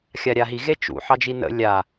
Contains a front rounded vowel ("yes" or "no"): no